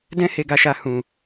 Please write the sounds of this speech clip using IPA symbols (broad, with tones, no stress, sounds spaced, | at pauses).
d ɛ̃˧ h e˨ ɡ a˨ ʃ a˨ h ũ˨